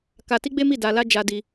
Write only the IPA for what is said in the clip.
k a˧ t i˦ ɡ͡b e˦ m i˦˨ d a˧ l a˦ d͡ʒ a˧ d i˧

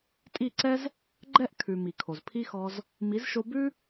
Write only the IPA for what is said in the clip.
tʼ i˦˨ ǀ ɛ˦ z | ɡ͡ǃ ɛ˦ ʔ kʰ ʉ˨ m i˨ kʰ o˨ z pʰ i˦ x ɔ˧ z | m i˨˦ z ʃ o˧ b ʉ˦

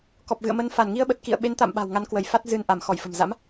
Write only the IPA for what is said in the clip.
k ɔ˨˩ p̚ ɣ ɨ̰˧˨ ə̯ m ə˧ n f a˧˩ n ŋ i˧ ə̯ ɓ ə˨˩ t̚ k ḭ˧˨ ə̯ ɓ e˨˦ n t̪ a̰˧˨ m ɓ a̤˨˩ w ŋ a˨˦ n k w ə˧˩ j f a˦˥ t̚ z ɨ˧ n ʔ a˧˩ m x ɔ˧˩ j f ə̤˨˩ m z a̰˧˥ m

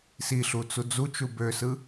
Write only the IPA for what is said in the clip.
s i ɬ u t͡s u d͡z u t͡ʃ u b ø s ɯ

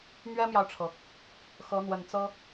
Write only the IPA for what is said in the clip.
m ɥ ɛ˥ m j ɑ˨ ʊ̯ ʈ͡ʂʰ ɤ˩ | x ɤ˧˥ n̪ w ə˨˩ n t͡s ɤ˥

